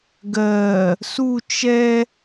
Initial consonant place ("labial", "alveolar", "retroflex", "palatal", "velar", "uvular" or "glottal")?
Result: velar